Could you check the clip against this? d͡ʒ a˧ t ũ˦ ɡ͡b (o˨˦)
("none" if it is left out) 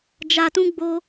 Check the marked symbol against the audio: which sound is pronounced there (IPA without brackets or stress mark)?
o˦